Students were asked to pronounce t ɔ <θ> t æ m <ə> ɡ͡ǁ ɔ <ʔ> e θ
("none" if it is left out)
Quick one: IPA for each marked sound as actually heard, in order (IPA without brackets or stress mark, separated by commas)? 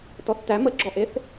θ, ə, ʔ